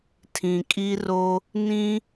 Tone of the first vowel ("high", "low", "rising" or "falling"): low